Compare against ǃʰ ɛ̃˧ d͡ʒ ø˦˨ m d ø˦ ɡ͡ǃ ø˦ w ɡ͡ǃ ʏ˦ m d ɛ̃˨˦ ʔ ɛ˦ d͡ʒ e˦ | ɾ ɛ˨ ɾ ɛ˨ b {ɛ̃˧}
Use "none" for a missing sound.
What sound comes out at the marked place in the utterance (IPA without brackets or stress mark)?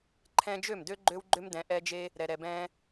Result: ɛ̃˧